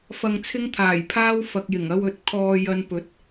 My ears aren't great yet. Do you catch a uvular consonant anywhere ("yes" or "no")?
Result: no